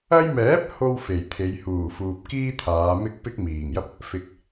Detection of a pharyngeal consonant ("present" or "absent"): absent